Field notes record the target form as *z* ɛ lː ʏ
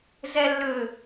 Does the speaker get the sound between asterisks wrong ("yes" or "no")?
no